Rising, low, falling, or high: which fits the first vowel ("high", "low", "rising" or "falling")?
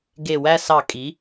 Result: low